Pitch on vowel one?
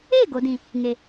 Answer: falling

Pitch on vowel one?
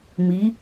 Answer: rising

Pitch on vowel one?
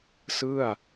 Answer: falling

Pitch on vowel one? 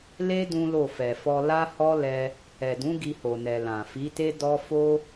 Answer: high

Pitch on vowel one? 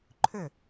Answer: falling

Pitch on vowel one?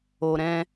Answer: low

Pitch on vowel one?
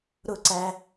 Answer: falling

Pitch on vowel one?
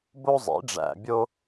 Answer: high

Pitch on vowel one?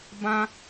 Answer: high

